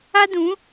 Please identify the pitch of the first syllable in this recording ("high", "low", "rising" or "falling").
high